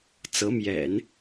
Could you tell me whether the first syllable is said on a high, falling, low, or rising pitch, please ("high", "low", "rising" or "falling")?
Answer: rising